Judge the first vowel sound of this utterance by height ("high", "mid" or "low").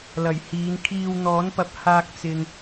low